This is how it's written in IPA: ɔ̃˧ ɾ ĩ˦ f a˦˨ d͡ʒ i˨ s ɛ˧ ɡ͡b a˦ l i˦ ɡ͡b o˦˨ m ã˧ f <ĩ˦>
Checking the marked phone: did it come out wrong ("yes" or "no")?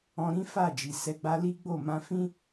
no